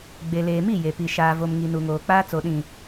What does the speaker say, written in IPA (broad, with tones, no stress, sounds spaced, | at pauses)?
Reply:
ɡ͡b e˨ l eː˨ m i˦˨ j e˨ p i˨ ʃ aː˨ v o˨ m ŋ i˨ n u˨ ŋ oː˨ k͡p aː˦ t͡s o˨ ɗ ĩ˨